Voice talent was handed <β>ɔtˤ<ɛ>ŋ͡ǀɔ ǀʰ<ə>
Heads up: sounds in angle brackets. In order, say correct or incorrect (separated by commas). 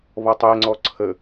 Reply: correct, correct, correct